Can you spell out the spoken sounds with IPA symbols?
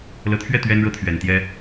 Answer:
l ɤ˨˩ t̪ʰ ɥ ɛ˥˩ t̪ ɥ ɛ˥ n ɻ ɤ˥˩ t̪ʰ ɥ ɛ˨˩ n t̪ j ɛ˥

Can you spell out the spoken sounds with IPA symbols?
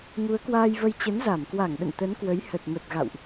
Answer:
ŋ u˨˦ ə̯ k w aː˧ j v ə˧ j t͡ɕ ə˨˦ n z a˧˩ m k w a˧˩ ŋ ɗ ə̰˧˨ n t̪ ə˨˦ n k w ə˨˦ j h ə˨˩ t̚ m ə˨˩ t̚ ɣ a̰˧˨ w ʔ

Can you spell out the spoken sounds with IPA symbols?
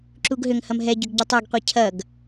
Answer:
ǁ u ɡ ɦ ʏ ŋ h ɐ m ɦ ɛ ɟ ʏ ɡ ɟ i tˤ ø ɡ qʷ i cʰ ɐ ɡ

